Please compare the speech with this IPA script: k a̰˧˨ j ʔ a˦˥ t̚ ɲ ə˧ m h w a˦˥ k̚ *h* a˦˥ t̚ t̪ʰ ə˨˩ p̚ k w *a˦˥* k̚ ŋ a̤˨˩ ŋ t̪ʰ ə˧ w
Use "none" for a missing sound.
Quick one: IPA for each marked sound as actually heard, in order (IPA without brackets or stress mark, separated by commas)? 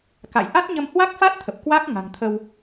f, a˦˥